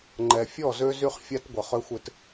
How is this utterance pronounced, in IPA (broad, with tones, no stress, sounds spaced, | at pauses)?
ŋ͡ǃ ɛ˨ fʲ ɔ˦˨ z ø˦ z y˦ χ fʲ a˦ t ɡʷ ə˨ χ ø˦ xʷ ɪ˦ t